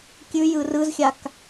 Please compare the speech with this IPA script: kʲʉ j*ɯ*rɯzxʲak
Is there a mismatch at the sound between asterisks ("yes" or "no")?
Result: no